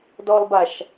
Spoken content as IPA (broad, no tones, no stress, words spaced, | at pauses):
dɔlˠbaʃ